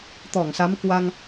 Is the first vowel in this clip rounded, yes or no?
yes